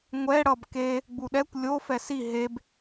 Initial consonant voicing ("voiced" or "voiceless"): voiced